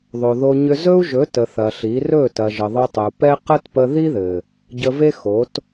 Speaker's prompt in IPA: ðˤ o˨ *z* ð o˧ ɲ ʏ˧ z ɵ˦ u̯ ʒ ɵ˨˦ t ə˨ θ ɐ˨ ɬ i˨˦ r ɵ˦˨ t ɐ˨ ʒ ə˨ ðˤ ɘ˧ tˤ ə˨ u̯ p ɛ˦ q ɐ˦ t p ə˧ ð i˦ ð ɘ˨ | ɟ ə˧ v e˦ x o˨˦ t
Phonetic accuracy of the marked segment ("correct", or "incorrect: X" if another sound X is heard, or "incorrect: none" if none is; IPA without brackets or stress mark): incorrect: none